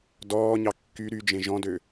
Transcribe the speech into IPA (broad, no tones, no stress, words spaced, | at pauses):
dɔːɲɑ kːy ɾyd͡ʒẽ ʒɔ̃dø